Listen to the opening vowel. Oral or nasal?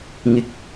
oral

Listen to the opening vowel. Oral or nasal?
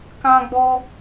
nasal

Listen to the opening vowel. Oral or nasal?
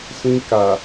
nasal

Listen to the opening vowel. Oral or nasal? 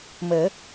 oral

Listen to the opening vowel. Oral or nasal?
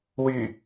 oral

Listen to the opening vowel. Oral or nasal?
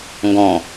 nasal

